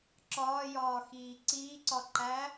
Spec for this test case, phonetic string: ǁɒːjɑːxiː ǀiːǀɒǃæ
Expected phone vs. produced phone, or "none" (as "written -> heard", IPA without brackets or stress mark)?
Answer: ɑː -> ɒː